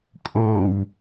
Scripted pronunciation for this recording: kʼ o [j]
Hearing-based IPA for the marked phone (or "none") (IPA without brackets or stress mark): w